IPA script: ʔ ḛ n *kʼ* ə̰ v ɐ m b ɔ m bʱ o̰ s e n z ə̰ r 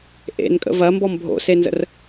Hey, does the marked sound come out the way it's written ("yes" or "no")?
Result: yes